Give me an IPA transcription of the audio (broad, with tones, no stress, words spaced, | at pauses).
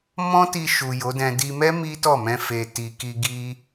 mɔ̃˦ti˧ʃu˨ jo˨˦dɛ̃˧ di˧mɛ˦ mi˦tɔ˦˨mɛ̃˧ fe˨ti˨ ki˧ɡi˦